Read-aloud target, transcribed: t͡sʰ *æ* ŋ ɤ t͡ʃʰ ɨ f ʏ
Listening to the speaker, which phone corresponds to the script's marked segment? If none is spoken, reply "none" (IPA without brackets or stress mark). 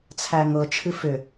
æ